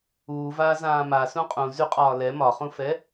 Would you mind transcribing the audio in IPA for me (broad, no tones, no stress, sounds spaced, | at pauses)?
uː v aː z ãː m a s ũ qʼ ũ z y qʼ ɒː l ɛ m ɒ χ ũ f ɛ